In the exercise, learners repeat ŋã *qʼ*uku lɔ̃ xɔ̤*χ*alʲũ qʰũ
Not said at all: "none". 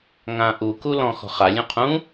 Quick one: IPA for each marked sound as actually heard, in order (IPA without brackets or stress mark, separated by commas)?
ʔ, χ